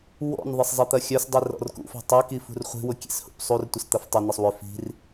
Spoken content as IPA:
w ɔ̰ n ðˤ ɪ sˤ zˤ ɪ t̪ ɐ xʲ œ s dˤ i r ɔ̰ r k ṵ f ɔ̤ tˤ œ k i f ṳ r χʷ i̤ w ʊ kʲ ḛ s h ṵ p sˤ u r tʷ ɪ s t̪ ɐ f tˤ ʊ n ə sˤ w ʏ f i̤ r

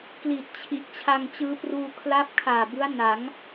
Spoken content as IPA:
k l i˨˩ t̚ t͡ɕʰ i˨˩ ʔ t͡ɕʰ a˧ ŋ t͡ɕ ɯː˦˥ p r uː˧ kʰ l a˦˥ p̚ kʰ aː˨˩ b ɯ˦˥ a̯ n a˩˦ ŋ

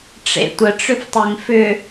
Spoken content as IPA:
ʈ͡ʂ ḛ tʷ ə ʈ͡ʂ ʏ f tˤ e ŋ f ʏ

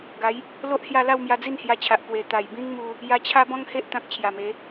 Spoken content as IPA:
ɡ a˨˦ j | l o˦ ʔ h j a˥˧ l a˥˧ w m j a˧ d͡z i˥˧ n h j a˧ t͡ɕʰ a˨ ʔ p w e˧ t̪ a˨˩ j b ĩ˦ ŋ m u˧ | j a˧ t͡ɕʰ a˦ b ɔ̃˦ ŋ h e˦ ʔ t̪ ã˦ k̚ t͡ɕʰ j a˨˩ m e˨˦

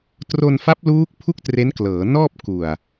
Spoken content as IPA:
t r o˧ n f a˦˥ p̚ l uː˦˥ k̚ pʰ u˥˩ k̚ t r e˦˥ n k l ɤː˩˦ n ɔː˥˩ p̚ k u˨˩ a̯

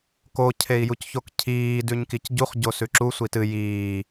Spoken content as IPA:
k o cʰ e i̯ j u c ç o k cʰ iː d ʉ ɲ k i c ɟ u χ ɟ o s ʉ ǁ u sʷ i t ɨ j iː

